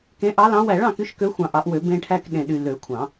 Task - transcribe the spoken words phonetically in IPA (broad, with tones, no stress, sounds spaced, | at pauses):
k ẽ˨˦ ʔ ɑ˨˦ l ɑ̃˨˦ w æ˨˩˦ ɭ ɑ̃˨ k y˨˦ ʃ k ø˨˦ xʷ ɑ̃˨ ʔ ɑ˨˩˦ ʔ w ø˨˩˦ b ẽ˨ ʈʰ æ˨ k ɗ ẽ˨ ɗ y˨ l ø˨˩˦ kʷʰ ɑ̃˨˩˦